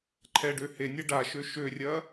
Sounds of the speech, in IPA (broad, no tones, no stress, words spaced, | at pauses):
ǃʰɛɖø henʲɛ ɖaʃø ʃørʲɐ